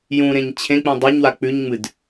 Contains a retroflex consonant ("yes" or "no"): no